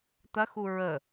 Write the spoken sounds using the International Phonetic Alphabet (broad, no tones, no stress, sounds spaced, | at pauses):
t̪ ɐ x u ɹ ə